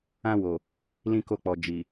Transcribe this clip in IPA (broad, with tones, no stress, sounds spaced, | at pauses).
ã˧ w o˨ | l ĩ˧ k o˧ k͡p ɔ˨ d͡ʒ i˨